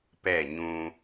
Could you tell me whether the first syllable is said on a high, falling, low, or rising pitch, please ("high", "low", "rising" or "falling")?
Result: falling